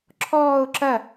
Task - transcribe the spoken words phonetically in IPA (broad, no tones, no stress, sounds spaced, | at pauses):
ǁʰ ɔː ʊ̯ ǁ ɐ